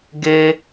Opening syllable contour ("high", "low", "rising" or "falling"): high